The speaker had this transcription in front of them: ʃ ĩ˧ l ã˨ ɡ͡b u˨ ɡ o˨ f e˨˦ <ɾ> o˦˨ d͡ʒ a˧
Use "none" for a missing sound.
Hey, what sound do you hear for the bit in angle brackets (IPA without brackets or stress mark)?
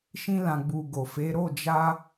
ɾ